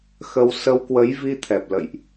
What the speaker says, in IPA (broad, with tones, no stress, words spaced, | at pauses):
xə˧w sə˧wkwə˨˦j vi˧t̪ʰɛ˨˩p̚lə̰˧˨jʔ